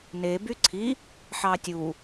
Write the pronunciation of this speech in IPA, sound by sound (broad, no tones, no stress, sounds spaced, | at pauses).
n e b y ǀʰ i | ħ ɑ tʲ u